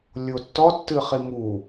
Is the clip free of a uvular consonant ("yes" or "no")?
no